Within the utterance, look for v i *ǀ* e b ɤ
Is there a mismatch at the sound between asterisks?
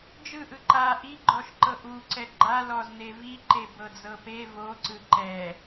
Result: yes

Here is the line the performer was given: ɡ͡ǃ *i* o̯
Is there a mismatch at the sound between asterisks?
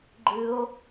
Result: yes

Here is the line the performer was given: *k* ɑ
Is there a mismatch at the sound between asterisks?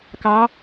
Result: no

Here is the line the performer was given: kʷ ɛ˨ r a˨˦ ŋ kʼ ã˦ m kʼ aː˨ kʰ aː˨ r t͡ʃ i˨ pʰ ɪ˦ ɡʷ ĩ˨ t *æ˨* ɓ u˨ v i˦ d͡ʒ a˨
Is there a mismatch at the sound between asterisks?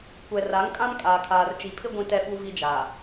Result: yes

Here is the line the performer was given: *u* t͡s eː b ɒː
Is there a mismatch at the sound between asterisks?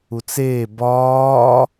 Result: no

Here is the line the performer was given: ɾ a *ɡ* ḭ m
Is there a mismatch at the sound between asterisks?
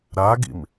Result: no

